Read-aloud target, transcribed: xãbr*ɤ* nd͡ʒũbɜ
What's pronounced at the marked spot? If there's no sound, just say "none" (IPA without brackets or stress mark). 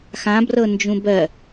ɤ